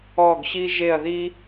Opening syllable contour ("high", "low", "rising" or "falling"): falling